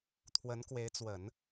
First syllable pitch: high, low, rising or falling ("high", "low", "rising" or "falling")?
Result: rising